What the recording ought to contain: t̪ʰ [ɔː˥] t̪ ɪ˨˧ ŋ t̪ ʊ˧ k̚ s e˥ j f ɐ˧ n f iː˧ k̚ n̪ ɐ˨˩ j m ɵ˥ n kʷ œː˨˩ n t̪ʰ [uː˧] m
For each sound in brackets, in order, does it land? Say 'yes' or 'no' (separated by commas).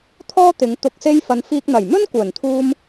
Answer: yes, yes